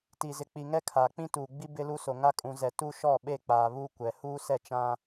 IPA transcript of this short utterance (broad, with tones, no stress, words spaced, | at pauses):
ti˨zɪ˨ k͡pi˨ŋɛ˦kʰaː˨ k͡pĩ˦tuː˨ɡ͡bi˦ bɪ˦lu˦so˨ ŋa˦kʼũ˨zɛ˨ tu˦ʃɔ˦˨ɓe˦˨k͡paː˨ βu˦kʷɛ˨ huː˦sɛ˦˨t͡ʃã˦